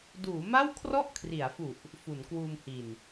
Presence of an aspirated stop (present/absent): present